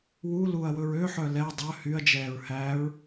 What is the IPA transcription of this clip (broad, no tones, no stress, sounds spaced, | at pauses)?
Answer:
w u l u ɐ̯ w ɵ ɹ ø ħ œ l ɛ dˤ œ h y ɐ̯ d͡ʒ ɛː ɹ h æ ɹ